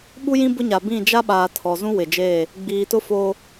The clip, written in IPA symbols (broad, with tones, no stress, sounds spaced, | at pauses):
ɓ u˦ j ĩ˦ b ʊ˦ ɲ a˨ b ĩ˦˨ d͡ʒ a˦ ɓ aː˨ tʰ ɔ˨ z ũ˦ w ɪ˨ d͡ʒ eː˦˨ | ɡ͡b iː˨ t ʊ˦ f oː˦